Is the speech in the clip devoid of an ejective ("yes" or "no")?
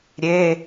yes